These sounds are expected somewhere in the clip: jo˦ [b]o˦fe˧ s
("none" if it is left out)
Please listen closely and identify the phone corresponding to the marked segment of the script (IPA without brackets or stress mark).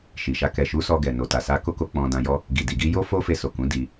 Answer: f